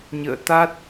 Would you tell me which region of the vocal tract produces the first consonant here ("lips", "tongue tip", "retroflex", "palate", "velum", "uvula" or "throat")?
palate